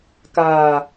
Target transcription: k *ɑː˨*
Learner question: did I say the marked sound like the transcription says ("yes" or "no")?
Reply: no